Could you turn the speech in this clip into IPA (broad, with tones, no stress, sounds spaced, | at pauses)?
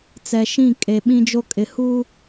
t͡s ɛ˨ ʃ ĩ˦˨ kʼ e˨ ɓ ĩ˦ d͡ʒ o˦ kʼ ɪ˦ h uː˦